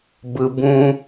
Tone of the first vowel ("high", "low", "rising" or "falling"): low